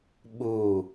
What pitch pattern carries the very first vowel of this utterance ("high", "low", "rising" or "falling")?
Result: falling